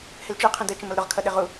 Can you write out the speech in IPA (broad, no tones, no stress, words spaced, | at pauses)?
hɪlt͡ʃə˞ qʰə̃də t͡ʃə̃mʌlɾʊʁ kʰʌɗɪʁu